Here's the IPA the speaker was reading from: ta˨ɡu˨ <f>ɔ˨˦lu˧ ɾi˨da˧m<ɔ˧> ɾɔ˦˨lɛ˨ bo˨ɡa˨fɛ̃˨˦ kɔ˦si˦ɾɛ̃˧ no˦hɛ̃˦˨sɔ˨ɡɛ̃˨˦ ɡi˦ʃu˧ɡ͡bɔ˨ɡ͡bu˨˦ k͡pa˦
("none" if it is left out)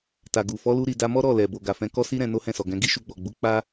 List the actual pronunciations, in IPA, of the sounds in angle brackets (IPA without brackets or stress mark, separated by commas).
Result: f, ɔ˦